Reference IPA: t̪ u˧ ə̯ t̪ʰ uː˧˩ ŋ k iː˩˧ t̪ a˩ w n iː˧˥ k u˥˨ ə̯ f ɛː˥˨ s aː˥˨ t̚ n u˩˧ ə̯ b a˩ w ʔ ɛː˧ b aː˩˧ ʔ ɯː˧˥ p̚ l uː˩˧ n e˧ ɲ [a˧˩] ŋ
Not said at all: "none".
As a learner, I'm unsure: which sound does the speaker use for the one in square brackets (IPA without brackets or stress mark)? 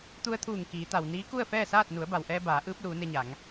a˩˧